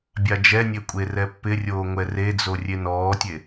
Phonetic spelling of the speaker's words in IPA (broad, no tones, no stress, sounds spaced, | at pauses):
bʲ a d͡ʒ ɛ nʲ e kʷʼ e r ɛ pː ɪ rʲ oː ŋʷ ɛ r e d͡z o rʲ e n ɔː tʲ e